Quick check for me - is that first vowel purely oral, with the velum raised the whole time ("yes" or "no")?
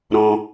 no